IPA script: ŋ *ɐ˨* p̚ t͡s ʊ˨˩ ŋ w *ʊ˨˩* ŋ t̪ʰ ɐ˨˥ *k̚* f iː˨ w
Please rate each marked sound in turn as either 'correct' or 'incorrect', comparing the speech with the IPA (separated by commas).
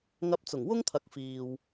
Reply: incorrect, incorrect, correct